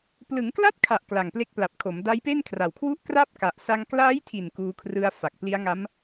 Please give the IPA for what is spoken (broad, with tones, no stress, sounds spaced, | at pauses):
p l ɯ˩˦ ŋ k l a˥˩ t̚ kʰ a˨˩ ʔ k l a˨˩ ŋ p l e˦˥ k̚ p l a˨˩ p̚ kʰ o˩˦ m d a˦˥ j p e˥˩ n kʰ r a˨˩ w kʰ w u˥˩ ʔ k r a˥˩ p̚ k a˨˩ ʔ s a˧ ŋ k l aː˦˥ j tʰ i˨˩ n k uː˧ kʰ r ɯ˧ a̯ f a˨˩ k̚ p l i˦˥ a̯ ŋ a˦˥ m